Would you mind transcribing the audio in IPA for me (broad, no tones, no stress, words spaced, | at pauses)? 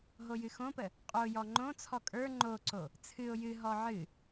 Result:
ɦojɨxõpə | qʼojɔ ŋ͡ǃõt͡sʰɔ kʼə˞ ŋ͡ǃoǀo | t͡sʰɨʊ̯ jɨɦɔ ʕɨ